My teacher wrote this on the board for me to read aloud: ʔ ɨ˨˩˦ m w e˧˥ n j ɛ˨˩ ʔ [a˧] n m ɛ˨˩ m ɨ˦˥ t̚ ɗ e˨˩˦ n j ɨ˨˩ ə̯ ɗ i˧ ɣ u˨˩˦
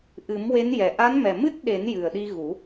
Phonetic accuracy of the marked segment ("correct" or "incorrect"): incorrect